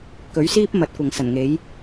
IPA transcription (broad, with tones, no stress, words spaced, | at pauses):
kɵ˨˥ɥsiː˥p̚ mɐ˨˥t̚kʷɐ˨ŋsɐ˨˩nŋe˨˥j